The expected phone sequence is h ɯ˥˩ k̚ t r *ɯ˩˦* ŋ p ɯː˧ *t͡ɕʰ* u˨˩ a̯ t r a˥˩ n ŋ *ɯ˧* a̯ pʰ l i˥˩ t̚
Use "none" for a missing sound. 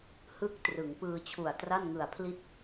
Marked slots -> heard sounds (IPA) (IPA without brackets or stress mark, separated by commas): ɯ˩˦, t͡ɕʰ, ɯ˨˩